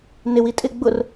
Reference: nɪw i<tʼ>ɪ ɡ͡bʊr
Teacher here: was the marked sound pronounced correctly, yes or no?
yes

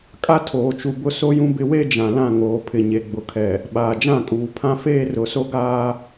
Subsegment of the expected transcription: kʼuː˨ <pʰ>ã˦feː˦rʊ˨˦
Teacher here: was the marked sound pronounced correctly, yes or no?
yes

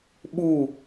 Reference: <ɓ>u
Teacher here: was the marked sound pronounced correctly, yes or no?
yes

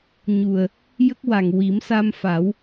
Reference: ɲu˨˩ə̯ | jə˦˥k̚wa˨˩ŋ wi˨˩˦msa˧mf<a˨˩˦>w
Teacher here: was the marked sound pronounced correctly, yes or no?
yes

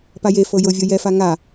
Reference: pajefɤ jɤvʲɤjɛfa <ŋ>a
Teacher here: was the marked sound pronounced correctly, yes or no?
yes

